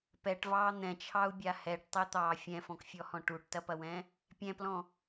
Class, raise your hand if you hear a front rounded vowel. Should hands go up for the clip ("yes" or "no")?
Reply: no